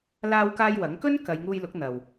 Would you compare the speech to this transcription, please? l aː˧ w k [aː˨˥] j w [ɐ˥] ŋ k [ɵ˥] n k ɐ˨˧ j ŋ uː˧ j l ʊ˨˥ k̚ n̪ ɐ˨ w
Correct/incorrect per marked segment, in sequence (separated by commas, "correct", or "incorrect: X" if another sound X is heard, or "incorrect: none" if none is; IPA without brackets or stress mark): incorrect: aː˧, incorrect: ɐ˨˥, correct